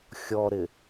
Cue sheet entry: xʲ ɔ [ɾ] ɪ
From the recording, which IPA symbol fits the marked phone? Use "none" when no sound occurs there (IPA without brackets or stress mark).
ɾ